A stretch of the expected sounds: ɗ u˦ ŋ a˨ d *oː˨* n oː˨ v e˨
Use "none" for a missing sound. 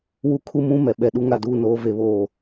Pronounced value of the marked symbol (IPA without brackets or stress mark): uː˨